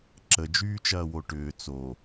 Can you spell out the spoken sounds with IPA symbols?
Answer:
ǁ ə d͡ʒ yː t͡ʃ ɐː w o ʈ ʏː t͡s o

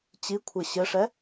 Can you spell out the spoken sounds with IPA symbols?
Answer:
t͡ɕ i kʷʰ ɘ ɕ ɘ ʂ ɛ

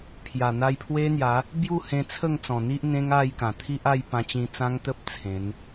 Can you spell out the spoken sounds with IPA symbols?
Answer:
pʰ j a˨˩ n̪ a˧ j pʰ w e˦ n̪ j a˨˦ | b j u˥˧ h ẽ˧ t͡sʰ ə˥˧ ŋ t͡s ɔ̃˨˩ n̪ i˦ ʔ n̪ ẽ˦ ŋ a˥˧ j k ã˨˩ t̪ʰ i˦ ʔ a˥˧ j p ã˧ t͡ɕ ĩ˧ t͡s ã˦ ŋ t̪ ə˦ p̚ t͡sʰ ẽ˨˦ n

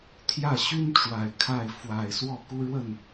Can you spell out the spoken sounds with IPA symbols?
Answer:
t̪ʰ j ä˥˩ ɕ y˥ n ʈ͡ʂ w a˨˩ ɪ̯ kʰ a˥˩ ɪ̯ f w a˨˩ ɪ̯ s w ɔ˥˩ k u˥ ɻ w ə˥˩ n

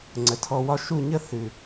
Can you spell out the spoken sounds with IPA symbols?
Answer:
ŋ͡ǀ ə˨ tʰ ɔ˧ w ɒ˦ ʃ u˦˨ ɲ ə˦ θ ʉ˨

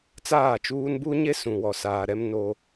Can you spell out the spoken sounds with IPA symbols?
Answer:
t͡s aː˦˨ t͡ʃ uː˦ n b u˦ ɲ e˦ s ũ˨ w ɔ˨ s aː˨ ɾ ɛ˦ m n o˦

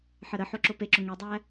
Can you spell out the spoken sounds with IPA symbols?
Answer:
ħ ə ɾ ə ħ o ǁ ʊ p e ǁ ʊ ŋ e dˤ æ

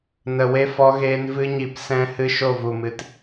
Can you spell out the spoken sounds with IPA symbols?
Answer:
n ə˨ w e˦ f ɔ˧ ɣ eː˧ n v ɨ˦ ɲ i˧ p s ɛ̃˦ h ɨ˦ ʃ o˦˨ v u˨ m ɨ˨ t

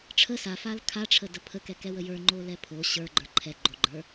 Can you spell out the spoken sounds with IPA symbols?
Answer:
ʈ͡ʂʰ ə s a f a l kʰ a ʈ͡ʂʰ ə d ə pʰ ə k ɛ k ɛ w ə j ə˞ ŋ͡ǃ o l ɛ pʰ o ɕ ə˞ ɡ͡ǃ ə˞ ǃʰ ɛ ɡ͡ǃ o ɡ͡ǃ ə˞

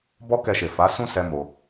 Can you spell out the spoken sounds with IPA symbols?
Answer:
b ɔ˦ k ɛ˧ ʃ e˨ f a˨˦ s ũ˦ s ɛ˦ m o˧

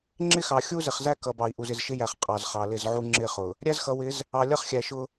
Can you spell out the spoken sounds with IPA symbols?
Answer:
ŋ͡ǁ ɪ˦ x ɑ˨ xʲ u˦ z ɪ˨ χ z æ˦ k ʌ˨ b ɑ˨ i̯ ʔ u˨ z ɪ˨ z ʃ ɪ˦ j æ˨ χ qʼ ɑ˨ z χ ɑ˨ l ɪ˦˨ z ʕ u˦ ŋ͡ǁ ɪ˦˨ χ ʊ˨ | ɾʲ æ˦ z x ʌ˨ w ɪ˨˦ z | ɑ˨ lʲ ʌ˦ χ xʲ æ˨ ʃ ʊ˦

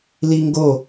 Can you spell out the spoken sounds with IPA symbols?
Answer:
l i ŋ ɡ o

